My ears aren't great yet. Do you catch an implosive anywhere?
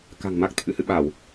yes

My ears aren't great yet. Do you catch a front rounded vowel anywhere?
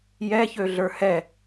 yes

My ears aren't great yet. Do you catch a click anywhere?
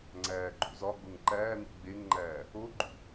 yes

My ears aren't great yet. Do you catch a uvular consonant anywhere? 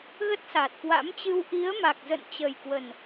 no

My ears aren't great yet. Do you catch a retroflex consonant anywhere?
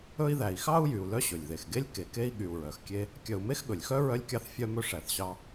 yes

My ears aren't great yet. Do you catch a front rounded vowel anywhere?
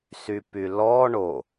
yes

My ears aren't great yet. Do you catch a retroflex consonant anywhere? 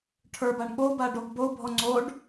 yes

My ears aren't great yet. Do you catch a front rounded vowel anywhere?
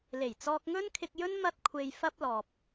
no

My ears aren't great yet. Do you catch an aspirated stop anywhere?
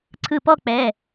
yes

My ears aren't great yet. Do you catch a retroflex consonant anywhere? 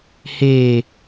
no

